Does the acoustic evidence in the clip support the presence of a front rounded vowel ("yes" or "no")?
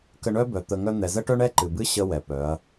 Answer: yes